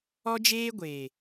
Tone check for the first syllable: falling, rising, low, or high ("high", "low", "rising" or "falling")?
high